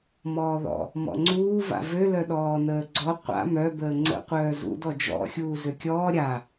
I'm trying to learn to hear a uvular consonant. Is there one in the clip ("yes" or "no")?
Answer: yes